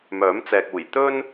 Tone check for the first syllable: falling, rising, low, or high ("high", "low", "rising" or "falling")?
rising